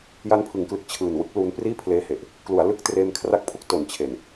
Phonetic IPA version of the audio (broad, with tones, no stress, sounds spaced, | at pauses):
j a˦˥ n pʰ ɯ˩˦ ŋ k l ɯ˨˩ k̚ t͡ɕʰ ɯː˨˩ n w ɯ˦˥ k̚ l u˦˥ n p r iː˥˩ pʰ l eː˧ h e˨˩ ʔ | k l u˩˦ a̯ l ɯ˦˥ k̚ t r eː˧ m kʰ r a˦˥ k̚ pʰ u˥˩ k̚ t o˨˩ n t͡ɕʰ e˨˩ n